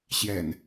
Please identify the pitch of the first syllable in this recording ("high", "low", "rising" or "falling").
low